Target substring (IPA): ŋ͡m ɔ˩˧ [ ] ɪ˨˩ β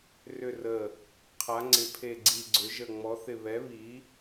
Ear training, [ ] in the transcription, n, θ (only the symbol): θ